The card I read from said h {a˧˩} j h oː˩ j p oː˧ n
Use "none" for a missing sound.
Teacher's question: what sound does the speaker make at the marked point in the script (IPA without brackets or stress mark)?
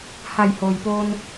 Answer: a˧˩